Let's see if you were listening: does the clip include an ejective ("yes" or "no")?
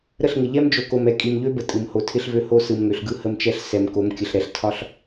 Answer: yes